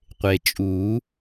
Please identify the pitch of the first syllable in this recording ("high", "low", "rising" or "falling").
low